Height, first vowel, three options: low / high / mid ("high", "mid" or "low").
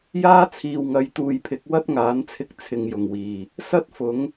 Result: low